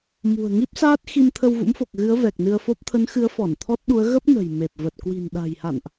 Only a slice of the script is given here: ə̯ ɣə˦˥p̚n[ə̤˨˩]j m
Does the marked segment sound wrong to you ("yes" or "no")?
no